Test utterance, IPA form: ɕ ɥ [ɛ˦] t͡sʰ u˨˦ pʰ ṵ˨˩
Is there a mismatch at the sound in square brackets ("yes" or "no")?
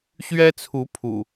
no